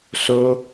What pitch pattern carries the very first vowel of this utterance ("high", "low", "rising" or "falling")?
high